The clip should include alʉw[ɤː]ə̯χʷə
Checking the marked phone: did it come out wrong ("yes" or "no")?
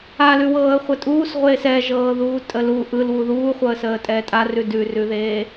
no